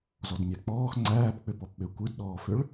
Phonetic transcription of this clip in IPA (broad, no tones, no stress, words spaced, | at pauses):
zɔdmʲæk͡pɔːx ŋ͡ǀæːpk͡pʏ pɔpɓʏ kʷɯdɗɔːfʏɭ